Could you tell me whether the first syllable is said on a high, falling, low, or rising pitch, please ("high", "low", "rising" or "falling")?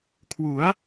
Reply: rising